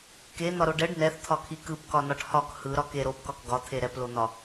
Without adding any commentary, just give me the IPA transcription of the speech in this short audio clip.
k e n̪ ɒ ɾ o ɖ ɛ ɖ n ɛ θ t̪ʰ ɒ kʰ i k ɯ p k ɒ n ɒ ʈ h ɒ k h ɯ ɾ ɒ k e ɾ o p k ɒ k ɡ ɒ t̪ʰ e ɾ ɛ p l o n̪ ɒ

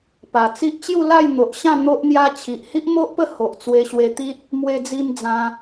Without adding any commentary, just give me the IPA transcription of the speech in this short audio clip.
p a˨˩ t͡s i˦ ʔ t͡ɕ j u˥˧ l a˥˧ j n̪ o˨ ʔ ɕ ã˥˧ n̪ o˦ ʔ n̪ j a˦ t͡ɕʰ i˨ ʔ h i˦ ʔ m o˦ ʔ p ə˥˧ h o˨ ʔ t͡s w e˧ ɕ w e˧ t̪ i˦ t̚ | m w e˧ d͡z i˧ m d͡z ã˧

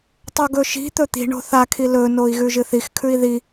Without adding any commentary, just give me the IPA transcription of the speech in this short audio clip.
tˤ o ɡ ɵ ʃ i̤ t̪ ɵ t̪ i̤ ɳ o̤ θ a kʰ i l ɵ n o i̯ ɣ ʉ ʒ ɨ θ i x kʰ ʉ i̯ ð i

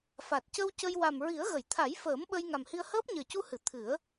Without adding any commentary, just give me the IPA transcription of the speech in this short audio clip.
f a˨˩ t̚ c ə˧ w c ə˧ j w a˨˩ m ɹ i˨˩˦ ə̯ ɣ ə˨˩˨ j t̪ʰ a˨˩˦ j f əː˨˩˦ m ɓ ə˧ j ŋ a˨˩ m h i˧ ə̯ h əː˦˥ p̚ ɲ əː˨˩ c u˧ h ɨ˨˩˨ t̪ʰ ɨ˨˩˦ ə̯

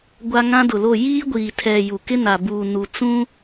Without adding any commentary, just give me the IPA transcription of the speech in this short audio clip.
ɡʷ a˦ ŋ ã˦ d ʊ˨ l o˦˨ j iː˦ ɡʷ iː˨ tʰ ɛ˨ j u˨ k ɪ˦ n a˨ b uː˨ n u˨ t͡s ũ˦

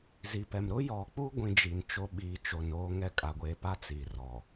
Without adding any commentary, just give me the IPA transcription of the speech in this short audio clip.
z i˨ p ɛ˨ m ɾ ʊ˦ j ɔ˨ k͡p u˦ ɡʷ ĩ˦ d͡ʒ i˨ n t͡ʃ o˦ ɓ iː˨˦ t͡ʃ o˨ n oː˦ ŋ ɛ˦ kʼ a˨ ɡʷ eː˨ p a˦ t͡s i˨ r ɔ˨

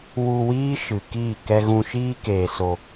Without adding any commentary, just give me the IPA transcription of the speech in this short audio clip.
w u˧ w iː˦ ʃ ɨ˨ k iː˦˨ k ɛ˧ ɣ ũ˧ ʃ iː˦ k eː˨ s o˨

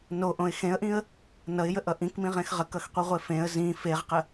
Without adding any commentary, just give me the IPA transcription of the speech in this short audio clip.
n o ʔ õ ɪ̯ x ẽ ə̯ ʔ ĩ ə̯ | n ʌ ɪ̯ j ə ʔ ʌ ʔ ĩ k m ĩ ʁ ẽ x ʁ ə k ʌ x qʷ i ʁʷ e f ẽ ə̯ z ĩ f e ʁ q ə

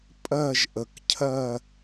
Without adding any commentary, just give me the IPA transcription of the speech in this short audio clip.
pʼ ɜ˥˧ ʒ ʔ ə˨ k cʰ ɜ˥˧

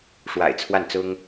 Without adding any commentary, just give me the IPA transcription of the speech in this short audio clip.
ʂ w a̰˨˩ ɪ̯ t͡sʰ w a˥˩ n t͡s ʊ˥ ŋ

